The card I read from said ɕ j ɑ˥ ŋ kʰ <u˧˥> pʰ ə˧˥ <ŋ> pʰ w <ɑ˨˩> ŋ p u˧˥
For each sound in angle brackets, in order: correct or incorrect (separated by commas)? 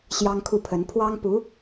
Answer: incorrect, incorrect, incorrect